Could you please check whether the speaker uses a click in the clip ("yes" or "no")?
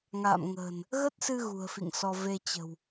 no